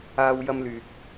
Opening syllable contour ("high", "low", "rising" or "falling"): high